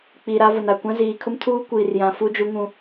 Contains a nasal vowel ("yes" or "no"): yes